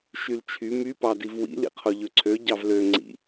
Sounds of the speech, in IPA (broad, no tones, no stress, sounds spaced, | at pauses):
ʃ y l t͡ʃʰ y m y p ɑ d i v w ḭ l ḭ qʰ o ʎ ø ǀʰ ø ɟ ɑ v l ø ŋ͡ǀ ḭ